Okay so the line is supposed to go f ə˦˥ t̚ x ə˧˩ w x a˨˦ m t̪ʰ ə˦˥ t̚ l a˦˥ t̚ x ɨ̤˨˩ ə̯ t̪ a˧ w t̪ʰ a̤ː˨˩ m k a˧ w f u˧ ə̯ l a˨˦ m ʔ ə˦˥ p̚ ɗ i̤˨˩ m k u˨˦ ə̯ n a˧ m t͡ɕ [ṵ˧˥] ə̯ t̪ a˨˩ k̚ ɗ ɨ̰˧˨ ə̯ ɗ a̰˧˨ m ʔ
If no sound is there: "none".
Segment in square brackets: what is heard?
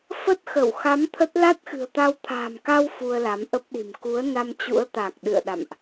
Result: ṵ˧˥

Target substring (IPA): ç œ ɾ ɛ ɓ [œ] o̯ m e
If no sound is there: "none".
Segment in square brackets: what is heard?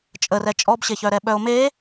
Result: œ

